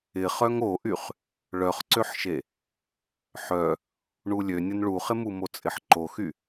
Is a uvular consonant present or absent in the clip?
present